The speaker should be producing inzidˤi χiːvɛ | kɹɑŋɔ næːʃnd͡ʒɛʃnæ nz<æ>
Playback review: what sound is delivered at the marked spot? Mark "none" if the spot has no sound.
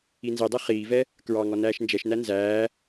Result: æː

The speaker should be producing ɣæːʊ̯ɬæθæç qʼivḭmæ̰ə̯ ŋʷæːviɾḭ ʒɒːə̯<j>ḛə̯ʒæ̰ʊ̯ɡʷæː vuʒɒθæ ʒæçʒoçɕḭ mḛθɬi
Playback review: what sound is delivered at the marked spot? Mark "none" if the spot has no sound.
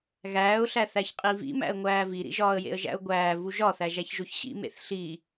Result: j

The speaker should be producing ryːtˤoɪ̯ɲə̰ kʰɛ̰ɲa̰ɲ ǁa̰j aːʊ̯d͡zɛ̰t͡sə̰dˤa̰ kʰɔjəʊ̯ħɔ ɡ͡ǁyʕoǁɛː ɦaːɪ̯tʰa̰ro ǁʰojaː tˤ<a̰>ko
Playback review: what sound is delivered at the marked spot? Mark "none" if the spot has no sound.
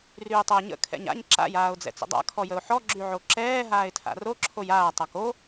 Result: a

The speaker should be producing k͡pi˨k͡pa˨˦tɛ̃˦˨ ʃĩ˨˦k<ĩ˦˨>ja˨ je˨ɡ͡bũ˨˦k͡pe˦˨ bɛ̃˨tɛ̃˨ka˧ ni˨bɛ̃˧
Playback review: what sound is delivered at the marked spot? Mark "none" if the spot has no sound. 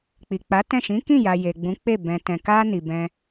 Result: ĩ˦˨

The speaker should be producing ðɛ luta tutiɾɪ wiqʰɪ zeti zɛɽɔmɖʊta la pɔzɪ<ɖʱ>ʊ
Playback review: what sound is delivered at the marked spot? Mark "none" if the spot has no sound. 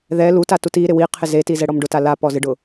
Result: ɖ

